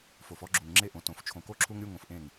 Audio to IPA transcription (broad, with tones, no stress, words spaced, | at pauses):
fo˨fɔ˦ɡ͡ǁu˨ŋŋ͡ǁe˦ ʔõ˨ tõ˨f t͡ʃʰõ˨ko˦ǁʰu˦ŋɾʲu˦ ŋõ˨fʔẽ˦˨ŋ